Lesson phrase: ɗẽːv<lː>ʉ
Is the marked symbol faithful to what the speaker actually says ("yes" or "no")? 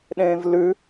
no